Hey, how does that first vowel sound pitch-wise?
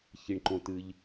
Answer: low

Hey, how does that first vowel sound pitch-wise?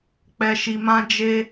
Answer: low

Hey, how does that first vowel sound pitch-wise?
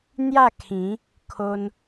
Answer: falling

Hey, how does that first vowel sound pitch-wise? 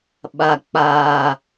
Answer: low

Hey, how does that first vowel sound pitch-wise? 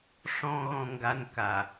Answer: low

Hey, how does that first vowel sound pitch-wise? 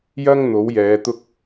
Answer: high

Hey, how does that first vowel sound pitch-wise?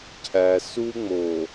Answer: low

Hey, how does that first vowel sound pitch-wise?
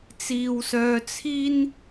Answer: low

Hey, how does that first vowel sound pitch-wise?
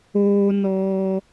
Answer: high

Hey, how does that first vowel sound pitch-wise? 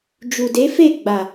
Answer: low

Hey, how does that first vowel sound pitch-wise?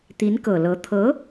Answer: rising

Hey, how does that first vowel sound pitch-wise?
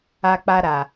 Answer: high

